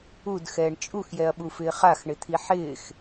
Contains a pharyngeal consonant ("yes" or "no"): yes